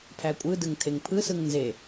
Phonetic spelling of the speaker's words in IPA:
pʰ æ kʷʼ ɯ d ɯ ŋ tʰ e ŋ pʰ ɯ s ɯ ŋ n z e

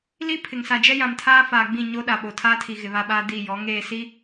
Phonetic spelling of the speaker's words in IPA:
l i˦ pʰ ɪ˨ ŋ s a˨ d͡ʒ ɛ˦ j ã˨ m tʰ aː˦ f aː˨ ɡ͡b ĩ˦˨ ɲ o˦ ɗ a˨ ɓ o˨ tʰ aː˦ tʰ i˨ ɣ ɪ˨ β a˦ ɓ aː˦ d i˦˨ j ɔ˨˦ ŋ eː˦˨ s i˦

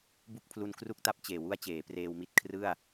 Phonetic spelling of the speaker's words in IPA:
b u˥˩ k̚ pʰ l u˧ n k r u˥˩ k̚ t a˥˩ p̚ t͡ɕ eː˨˩ w u˥˩ a̯ t͡ɕ eː˩˦ p r eː˧ w m i˥˩ t̚ kʰ r ɯ˥˩ a̯

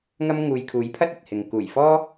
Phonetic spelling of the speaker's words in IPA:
ŋ ɐ˥ m ŋ uː˨ j kʰ uː˨˥ j pʰ ɐ˥ t̚ ɐ˨ t̚ h ɪ˨ ŋ k uː˨˩ j f ɔː˥

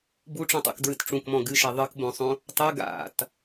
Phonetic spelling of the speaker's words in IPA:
b u ʈ͡ʂ ũ tˤ ṵ k d ɹ ɨ t ʈ͡ʂ ũ k m ɔ̃ ɡ ɨ ʃ e ðˤ ɨ k b õ sˤ õ | tˤ ɨ ɡ a̰ t

